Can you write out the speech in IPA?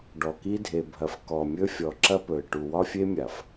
ɖ ɔ˨ k i˦ dʱ e˨ bʱ ɐ˨ f k ɔ˨ mʲ ɵ˦ fʲ ɔ˨ ǁ ɐ˦ p ɵ˨ ɪ̯ ʈ u˨ w ɒ˦ fʲ e˦ mʲ a˨ f

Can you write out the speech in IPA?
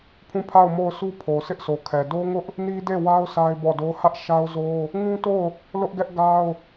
pʰ ũ˦˨ pʰ a˦˨ ʊ̯ m o˦˨ ʊ̯ sʰ u˦ pʰ o˨ s ɪ˦ ʔ s o˨ kʰ ɛ˨ d o˦ ŋ ʊ˦ ʔ | n i˦ d e˦˨ w a˦ ʊ̯ s a˦ ɪ̯ b ɔ˦˨ d o˦ h ä˦ ʔ ʃ a˦ ʊ̯ z o˦ | ŋ ũ˦ t o˦˨ ʊ̯ | l ʊ˦ ʔ ɡ ɛ˦ ʔ ɡ a˦ ʊ̯

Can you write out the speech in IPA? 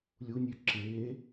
lʲ u nʲ ʉ ǁ eː

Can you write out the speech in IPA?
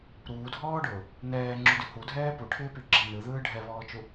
ɾ uː dʱ ɔː ɖ ʊː | n ɛː ŋ͡ǁ u d y h u dʱ ɛː p u ʈʰ ɪː p y ɡ͡ǁ ɛ n ɯ ð ɯː ɖʱ ɛ β ɔː t͡ʃ u

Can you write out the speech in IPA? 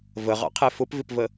v ə ʁ ɑ̰ qʰ ɛ f ʊ p v ɪ p v ə

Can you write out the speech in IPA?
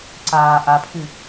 ǀ aː ʔ a pʰ ɨ

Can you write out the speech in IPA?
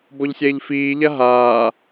b ɔ ʎ sʲ ɛː ʎ f iː ʎ a ɦ aː

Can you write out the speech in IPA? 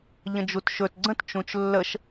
ʎ ə̃ d͡ʒ u t ʃ ɵ t ɡ͡ǀ ə̃ t t͡ʃ ũ t͡ʃ lː ə ʃ

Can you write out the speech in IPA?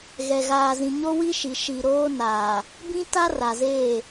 ɣ ɛ˨ ɣ aː˨ z ĩ˨ ɲ o˦ w i˦ ʃ i˨ ʃ i˨ ɾ oː˦ n aː˨ | b ĩ˦ t a˦ r a˨ z eː˦˨

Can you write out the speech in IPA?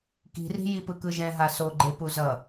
k i̤ r i̤ j i p ɯ k ɯ ʒ ɛ̃ ɦ a s o ɡ͡ǃ e p u z ʌ

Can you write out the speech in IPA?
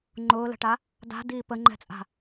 ŋ͡ǃ ʊː l ə̤ ʈ a | d a̤ d iː p ə ŋ͡ǃ ɛ̤ t͡sʼ a̤

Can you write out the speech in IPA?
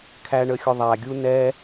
kʰ æ ɳ ə xʲ ʊ ðˤ æ ɡʲ u n ɛ

